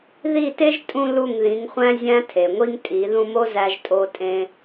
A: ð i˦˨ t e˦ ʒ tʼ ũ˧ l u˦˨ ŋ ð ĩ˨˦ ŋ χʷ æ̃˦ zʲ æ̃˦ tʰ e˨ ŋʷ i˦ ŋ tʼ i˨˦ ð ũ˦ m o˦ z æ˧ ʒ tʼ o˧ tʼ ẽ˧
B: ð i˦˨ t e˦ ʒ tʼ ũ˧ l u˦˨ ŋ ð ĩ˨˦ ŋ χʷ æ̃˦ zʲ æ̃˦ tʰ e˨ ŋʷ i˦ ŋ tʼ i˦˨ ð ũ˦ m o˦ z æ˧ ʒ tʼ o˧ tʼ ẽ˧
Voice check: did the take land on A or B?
A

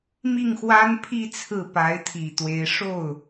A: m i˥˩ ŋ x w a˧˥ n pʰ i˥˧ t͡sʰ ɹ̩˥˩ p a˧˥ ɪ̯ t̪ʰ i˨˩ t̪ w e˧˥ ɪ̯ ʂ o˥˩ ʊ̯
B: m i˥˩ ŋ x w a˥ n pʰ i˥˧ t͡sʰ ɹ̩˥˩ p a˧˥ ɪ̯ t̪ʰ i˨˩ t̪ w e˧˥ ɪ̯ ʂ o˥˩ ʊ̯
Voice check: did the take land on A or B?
B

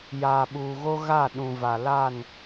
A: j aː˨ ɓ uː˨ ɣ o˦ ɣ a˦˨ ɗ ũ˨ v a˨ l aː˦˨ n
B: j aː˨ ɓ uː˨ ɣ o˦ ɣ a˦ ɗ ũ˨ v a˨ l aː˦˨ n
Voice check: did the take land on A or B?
A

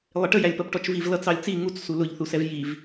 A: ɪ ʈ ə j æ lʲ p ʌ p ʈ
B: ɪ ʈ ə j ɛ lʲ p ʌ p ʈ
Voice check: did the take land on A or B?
A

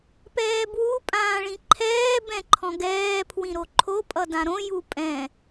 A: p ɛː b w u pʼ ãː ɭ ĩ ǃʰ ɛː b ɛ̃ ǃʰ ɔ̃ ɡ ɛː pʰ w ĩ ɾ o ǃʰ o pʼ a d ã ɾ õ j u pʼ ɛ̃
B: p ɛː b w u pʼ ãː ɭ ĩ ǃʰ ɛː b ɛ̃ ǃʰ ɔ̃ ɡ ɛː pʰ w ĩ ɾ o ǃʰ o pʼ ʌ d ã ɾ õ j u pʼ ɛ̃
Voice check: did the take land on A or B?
B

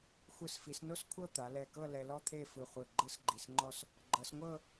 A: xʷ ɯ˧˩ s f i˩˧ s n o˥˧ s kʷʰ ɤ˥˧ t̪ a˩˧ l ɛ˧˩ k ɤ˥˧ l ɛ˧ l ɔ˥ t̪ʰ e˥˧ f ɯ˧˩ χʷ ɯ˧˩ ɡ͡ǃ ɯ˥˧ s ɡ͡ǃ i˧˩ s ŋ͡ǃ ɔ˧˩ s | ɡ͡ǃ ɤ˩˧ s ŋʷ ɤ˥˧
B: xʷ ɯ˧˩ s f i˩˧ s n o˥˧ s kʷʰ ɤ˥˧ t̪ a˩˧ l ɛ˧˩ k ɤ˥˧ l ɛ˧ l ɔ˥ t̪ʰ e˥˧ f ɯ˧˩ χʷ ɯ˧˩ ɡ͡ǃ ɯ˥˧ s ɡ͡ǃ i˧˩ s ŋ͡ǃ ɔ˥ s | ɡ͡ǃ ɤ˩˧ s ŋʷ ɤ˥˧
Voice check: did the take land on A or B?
B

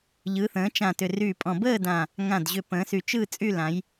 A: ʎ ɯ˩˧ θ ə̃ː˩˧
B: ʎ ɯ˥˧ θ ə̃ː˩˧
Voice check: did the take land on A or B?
A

